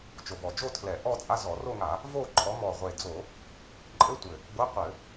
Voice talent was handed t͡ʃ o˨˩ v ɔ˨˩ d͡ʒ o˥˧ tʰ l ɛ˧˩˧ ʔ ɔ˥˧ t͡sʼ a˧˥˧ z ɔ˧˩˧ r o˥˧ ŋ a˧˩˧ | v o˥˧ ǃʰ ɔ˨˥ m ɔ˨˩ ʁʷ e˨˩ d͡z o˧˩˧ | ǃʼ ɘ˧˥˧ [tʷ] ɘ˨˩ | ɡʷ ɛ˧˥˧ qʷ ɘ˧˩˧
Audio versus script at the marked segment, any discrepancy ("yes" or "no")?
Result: no